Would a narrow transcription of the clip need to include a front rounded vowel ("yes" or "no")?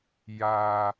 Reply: no